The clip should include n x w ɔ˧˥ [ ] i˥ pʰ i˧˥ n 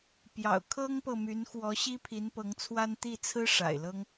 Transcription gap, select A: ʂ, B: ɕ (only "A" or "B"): B